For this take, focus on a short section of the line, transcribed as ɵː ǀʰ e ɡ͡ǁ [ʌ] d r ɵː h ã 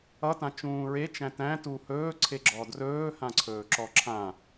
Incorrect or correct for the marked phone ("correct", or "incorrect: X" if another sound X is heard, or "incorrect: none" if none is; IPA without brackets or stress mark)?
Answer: incorrect: ɔ